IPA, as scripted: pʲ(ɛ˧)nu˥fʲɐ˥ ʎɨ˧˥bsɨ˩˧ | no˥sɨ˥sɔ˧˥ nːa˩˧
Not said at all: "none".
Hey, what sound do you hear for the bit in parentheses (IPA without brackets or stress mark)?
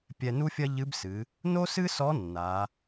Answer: ɛ˧